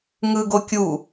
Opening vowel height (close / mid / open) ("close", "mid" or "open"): close